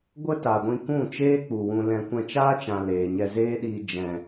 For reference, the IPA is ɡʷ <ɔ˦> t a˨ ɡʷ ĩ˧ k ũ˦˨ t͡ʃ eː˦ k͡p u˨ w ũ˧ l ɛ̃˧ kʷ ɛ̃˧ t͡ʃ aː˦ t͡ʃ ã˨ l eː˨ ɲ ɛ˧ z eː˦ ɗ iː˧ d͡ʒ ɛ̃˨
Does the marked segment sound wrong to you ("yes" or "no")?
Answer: yes